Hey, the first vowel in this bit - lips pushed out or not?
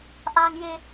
no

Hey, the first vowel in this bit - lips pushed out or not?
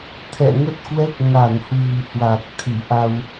no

